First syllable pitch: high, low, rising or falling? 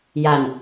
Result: low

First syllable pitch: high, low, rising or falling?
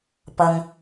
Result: low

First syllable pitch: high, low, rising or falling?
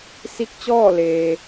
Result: rising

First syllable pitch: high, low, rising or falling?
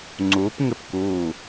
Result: rising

